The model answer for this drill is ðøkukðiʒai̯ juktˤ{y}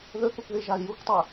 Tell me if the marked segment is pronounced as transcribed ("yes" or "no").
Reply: no